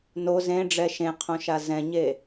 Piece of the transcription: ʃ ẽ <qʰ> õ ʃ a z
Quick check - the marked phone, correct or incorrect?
correct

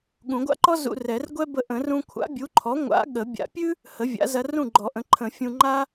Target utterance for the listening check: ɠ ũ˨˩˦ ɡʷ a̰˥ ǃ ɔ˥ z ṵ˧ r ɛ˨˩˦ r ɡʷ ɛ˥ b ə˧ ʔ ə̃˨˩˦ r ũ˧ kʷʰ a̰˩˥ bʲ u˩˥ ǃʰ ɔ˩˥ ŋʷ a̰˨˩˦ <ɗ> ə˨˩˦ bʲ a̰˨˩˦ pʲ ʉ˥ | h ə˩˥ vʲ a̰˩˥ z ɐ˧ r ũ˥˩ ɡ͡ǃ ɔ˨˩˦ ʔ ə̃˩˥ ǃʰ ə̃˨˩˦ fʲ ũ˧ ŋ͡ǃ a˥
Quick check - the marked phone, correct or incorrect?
incorrect: ɠ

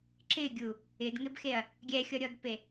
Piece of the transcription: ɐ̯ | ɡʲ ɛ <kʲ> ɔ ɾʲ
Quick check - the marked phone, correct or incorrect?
incorrect: xʲ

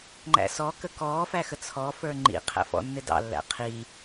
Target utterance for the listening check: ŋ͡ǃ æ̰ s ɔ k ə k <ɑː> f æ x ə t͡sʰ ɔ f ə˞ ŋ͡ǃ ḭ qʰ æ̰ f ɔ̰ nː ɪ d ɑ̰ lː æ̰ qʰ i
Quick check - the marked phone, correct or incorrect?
incorrect: ɔː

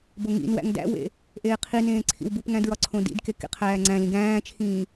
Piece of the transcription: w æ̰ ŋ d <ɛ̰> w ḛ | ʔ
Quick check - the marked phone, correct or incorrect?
incorrect: æ̰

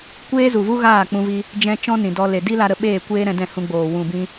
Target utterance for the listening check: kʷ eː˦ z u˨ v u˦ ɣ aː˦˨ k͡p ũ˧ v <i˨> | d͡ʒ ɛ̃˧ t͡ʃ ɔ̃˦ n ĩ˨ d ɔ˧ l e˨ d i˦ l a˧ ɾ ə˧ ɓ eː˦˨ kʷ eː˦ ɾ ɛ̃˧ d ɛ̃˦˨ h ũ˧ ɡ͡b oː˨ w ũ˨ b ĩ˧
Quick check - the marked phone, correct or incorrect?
incorrect: i˧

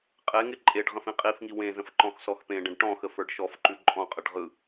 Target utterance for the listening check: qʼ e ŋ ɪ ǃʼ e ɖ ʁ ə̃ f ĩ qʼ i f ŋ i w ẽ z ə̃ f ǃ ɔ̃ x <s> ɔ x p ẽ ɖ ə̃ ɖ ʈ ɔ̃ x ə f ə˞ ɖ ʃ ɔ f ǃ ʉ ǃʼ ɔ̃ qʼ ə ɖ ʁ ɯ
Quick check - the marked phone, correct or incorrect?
correct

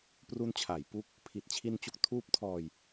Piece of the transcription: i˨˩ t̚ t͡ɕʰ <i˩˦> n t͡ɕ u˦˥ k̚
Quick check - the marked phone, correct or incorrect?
incorrect: i˧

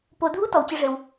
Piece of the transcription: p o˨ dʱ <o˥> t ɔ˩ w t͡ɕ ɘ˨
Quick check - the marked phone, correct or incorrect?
incorrect: u˥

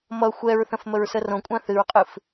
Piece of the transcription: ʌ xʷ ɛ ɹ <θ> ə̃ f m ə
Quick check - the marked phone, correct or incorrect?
correct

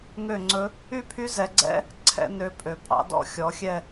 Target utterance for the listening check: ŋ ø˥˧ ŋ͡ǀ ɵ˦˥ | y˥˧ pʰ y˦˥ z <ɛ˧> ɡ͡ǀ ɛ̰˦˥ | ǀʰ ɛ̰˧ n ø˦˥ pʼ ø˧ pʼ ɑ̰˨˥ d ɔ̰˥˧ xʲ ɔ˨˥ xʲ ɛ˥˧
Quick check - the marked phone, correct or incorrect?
correct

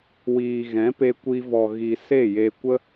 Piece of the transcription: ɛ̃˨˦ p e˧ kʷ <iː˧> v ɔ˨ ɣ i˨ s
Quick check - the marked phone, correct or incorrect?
incorrect: i˧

